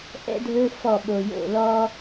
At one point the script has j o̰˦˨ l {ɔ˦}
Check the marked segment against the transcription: correct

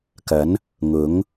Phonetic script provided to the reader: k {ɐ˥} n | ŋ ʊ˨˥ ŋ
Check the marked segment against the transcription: incorrect: ɐ˨˥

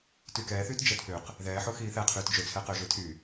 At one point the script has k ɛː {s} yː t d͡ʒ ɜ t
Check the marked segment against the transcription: incorrect: θ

